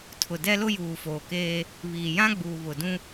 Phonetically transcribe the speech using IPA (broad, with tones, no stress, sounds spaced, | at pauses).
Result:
tʰ ʊ˨ d ɛ˦ l ʊ˦ j uː˨ f oː˨ k eː˦ | β iː˨ j ã˦ ɡ͡b uː˨ β ʊ˨ d ũ˦